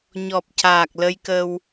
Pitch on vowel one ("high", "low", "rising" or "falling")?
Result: low